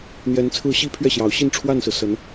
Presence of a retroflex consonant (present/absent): present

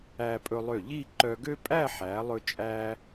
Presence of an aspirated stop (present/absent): absent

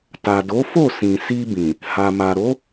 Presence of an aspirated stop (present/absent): absent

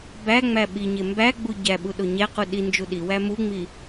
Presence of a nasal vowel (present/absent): absent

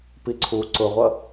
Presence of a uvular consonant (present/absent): present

